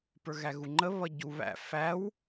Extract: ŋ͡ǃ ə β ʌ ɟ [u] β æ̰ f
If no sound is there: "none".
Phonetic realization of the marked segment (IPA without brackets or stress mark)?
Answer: u